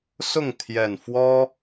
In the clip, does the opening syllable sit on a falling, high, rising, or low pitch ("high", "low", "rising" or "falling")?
falling